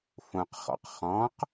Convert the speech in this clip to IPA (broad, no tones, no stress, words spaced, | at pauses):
fõqχɔ̰q χɔ̃q